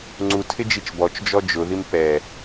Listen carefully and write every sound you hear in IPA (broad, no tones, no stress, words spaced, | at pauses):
ŋ͡ǀutʰɪd͡ʒit͡ʃ bɔt͡ʃd͡ʒɔ d͡ʒʊðim pɛ